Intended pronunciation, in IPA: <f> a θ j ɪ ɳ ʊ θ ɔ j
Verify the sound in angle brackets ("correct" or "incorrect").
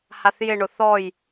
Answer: incorrect